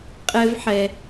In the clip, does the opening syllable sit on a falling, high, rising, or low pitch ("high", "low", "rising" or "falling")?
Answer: high